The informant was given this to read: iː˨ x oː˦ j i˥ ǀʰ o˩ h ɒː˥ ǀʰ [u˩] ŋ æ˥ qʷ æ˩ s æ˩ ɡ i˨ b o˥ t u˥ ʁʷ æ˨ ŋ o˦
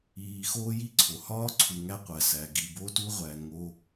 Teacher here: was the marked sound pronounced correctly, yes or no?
no